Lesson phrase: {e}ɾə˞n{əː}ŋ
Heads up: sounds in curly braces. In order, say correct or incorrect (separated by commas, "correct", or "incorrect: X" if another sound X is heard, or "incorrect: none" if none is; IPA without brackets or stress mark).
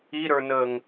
incorrect: i, correct